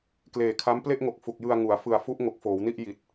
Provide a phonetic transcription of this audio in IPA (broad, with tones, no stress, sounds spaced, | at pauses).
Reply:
k l eː˨˩ kʰ a˦˥ m p l e˥˩ ʔ ŋ o˨˩ k̚ f u˨˩ k̚ j ɯ˧ a̯ ŋ u˩˦ a̯ f ɯ˨˩ a̯ f u˦˥ ʔ ŋ o˨˩ k̚ f oː˩˦ w n i˥˩ ʔ j i˨˩ t̚